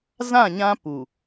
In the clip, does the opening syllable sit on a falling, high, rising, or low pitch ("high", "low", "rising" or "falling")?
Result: falling